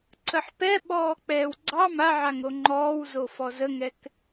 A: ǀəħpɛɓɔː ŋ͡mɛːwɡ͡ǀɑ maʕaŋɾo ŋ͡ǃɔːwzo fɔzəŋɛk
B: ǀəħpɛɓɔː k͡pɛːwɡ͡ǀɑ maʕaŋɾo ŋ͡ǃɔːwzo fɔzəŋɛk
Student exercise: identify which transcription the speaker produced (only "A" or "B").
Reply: B